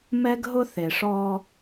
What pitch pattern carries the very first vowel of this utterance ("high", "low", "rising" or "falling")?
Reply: high